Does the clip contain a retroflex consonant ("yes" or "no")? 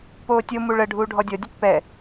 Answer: yes